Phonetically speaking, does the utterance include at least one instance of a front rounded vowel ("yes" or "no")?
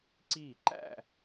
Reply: no